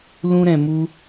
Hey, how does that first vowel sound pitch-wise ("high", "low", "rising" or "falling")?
high